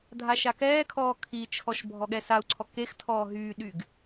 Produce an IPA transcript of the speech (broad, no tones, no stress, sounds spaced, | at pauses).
dʱ a ʃ a k ɛː kʰ ɔː kʰ i t͡ʃʰ ɔ ʃ bʱ ɔ ɠ ɛ s a u̯ ǀʰ ɔ k e x tʰ ɔː ɦ yː ɗ y ɡ